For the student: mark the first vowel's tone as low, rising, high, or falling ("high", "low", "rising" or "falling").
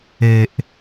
low